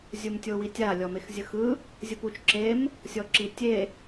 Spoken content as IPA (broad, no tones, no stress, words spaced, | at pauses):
zʲumtʲowitʲa lʲɔmexzʲɯxɯ | zʲɯput͡ʃ ǁem | sʲɔǁitʲe